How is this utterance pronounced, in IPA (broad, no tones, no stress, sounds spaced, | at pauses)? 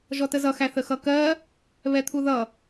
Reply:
ʒ ɔ t ə z ʌ x æ θ ə x ʌ k ɜ | β ɛ t̪ʰ u ð ʌ